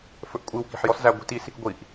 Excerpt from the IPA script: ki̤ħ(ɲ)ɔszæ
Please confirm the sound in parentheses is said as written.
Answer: no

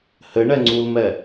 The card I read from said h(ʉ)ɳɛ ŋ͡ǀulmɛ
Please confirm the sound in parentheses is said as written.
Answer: no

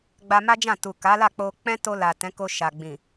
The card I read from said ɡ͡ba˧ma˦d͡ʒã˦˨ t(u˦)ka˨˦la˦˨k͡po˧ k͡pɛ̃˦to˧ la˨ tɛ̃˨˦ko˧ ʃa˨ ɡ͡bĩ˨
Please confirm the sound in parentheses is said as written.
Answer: no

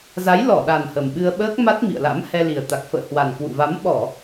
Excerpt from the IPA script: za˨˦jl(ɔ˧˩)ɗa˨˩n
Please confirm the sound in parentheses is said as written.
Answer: yes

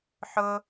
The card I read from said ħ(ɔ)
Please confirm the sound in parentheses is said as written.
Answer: no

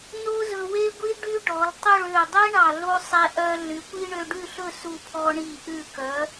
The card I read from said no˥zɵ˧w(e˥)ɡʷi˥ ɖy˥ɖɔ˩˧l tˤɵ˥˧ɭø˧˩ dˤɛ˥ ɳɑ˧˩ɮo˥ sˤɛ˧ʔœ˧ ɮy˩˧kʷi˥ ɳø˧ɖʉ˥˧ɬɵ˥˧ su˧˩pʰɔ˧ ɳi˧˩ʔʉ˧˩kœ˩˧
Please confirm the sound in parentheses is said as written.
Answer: yes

